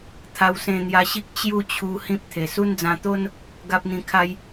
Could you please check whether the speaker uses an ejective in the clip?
no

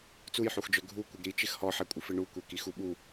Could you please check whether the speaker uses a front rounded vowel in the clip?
yes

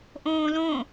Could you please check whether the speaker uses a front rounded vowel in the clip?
no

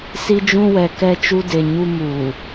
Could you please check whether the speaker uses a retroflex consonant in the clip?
no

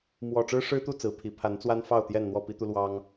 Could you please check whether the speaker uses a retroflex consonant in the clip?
yes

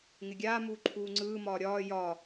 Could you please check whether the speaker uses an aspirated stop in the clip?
yes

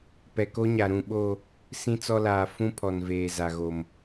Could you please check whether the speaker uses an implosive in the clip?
yes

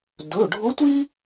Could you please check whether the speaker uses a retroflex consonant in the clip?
yes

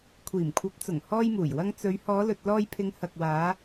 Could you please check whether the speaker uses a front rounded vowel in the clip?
no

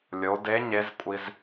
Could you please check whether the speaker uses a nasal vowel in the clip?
no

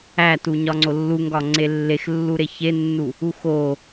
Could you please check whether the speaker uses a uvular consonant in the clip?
no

